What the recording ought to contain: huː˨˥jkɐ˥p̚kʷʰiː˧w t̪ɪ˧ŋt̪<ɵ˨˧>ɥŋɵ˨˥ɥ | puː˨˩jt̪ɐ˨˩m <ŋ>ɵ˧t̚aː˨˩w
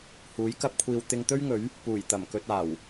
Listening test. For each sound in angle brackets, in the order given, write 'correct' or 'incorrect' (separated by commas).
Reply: incorrect, incorrect